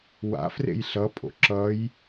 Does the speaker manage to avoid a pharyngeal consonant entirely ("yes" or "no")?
yes